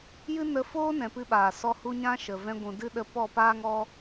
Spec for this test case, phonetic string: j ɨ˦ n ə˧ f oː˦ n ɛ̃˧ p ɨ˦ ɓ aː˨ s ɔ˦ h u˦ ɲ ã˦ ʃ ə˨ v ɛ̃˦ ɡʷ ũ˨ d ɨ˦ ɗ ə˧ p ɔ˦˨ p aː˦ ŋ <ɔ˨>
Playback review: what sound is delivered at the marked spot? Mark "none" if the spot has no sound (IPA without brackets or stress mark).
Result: ɔ˦